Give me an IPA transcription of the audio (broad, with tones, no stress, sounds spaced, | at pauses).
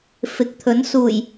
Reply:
f ɪ˨ k̚ t̪ʰ ɵ˨˥ n s uː˨˩ j